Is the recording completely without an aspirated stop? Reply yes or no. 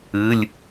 yes